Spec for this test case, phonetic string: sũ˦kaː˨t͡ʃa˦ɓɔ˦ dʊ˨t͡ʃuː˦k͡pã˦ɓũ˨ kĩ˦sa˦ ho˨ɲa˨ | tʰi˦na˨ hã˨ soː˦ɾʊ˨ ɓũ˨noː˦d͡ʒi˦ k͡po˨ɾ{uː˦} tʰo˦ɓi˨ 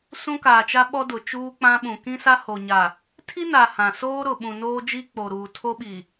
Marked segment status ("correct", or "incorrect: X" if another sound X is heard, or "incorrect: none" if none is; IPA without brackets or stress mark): incorrect: uː˨